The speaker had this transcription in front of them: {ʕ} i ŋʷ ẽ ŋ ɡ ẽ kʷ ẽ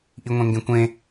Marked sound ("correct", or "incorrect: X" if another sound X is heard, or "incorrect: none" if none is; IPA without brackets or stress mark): incorrect: ʔ